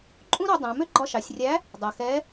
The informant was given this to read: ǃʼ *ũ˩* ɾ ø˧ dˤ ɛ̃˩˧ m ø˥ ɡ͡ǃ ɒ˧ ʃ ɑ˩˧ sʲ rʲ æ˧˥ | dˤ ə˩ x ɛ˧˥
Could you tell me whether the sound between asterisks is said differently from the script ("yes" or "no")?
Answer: yes